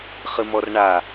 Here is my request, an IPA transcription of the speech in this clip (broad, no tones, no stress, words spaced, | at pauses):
χɨmɔrɳa